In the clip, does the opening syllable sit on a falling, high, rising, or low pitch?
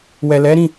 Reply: low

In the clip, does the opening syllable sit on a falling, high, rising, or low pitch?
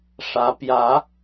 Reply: rising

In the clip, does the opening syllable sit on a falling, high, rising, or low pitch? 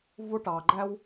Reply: high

